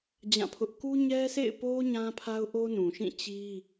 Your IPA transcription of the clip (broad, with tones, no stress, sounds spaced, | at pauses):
d͡ʑ ã˦˨ pʰ ʊ˦ ʔ k u˦ ɲ ɛ˦ sʰ ḛ˦˨ ɪ̯ p o˦ ɲ ã˦ pʰ a˦ ʊ̯ ʔ o˦ n ũ˨ ʃ ĩ˦˨ t͡ɕ i˦